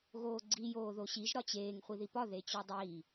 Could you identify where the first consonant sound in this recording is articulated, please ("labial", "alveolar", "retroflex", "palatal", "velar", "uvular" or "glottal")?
velar